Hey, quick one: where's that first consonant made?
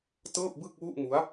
tongue tip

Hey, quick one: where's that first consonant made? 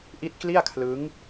throat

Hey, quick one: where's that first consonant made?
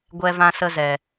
velum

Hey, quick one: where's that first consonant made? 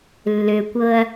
tongue tip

